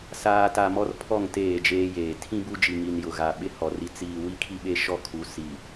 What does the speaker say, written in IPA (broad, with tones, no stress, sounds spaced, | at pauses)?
s aː˨ t a˨ m ɔ˦ r pʰ ɔ˦˨ ŋ t eː˦˨ d͡ʒ eː˦ j eː˨ tʰ ĩ˦ b u˦ d͡ʒ i˨ ŋ i˨ n j ʊ˨ ɣ a˨ ɓ ɪ˦ h ɔ˨ r i˨ t͡s iː˨ w i˦ kʰ i˦ ɓ e˦ ʃ ɔ˦˨ kʰ u˨ s i˨